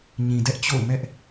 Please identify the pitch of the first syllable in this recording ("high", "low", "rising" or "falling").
low